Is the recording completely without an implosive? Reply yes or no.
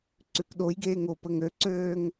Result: no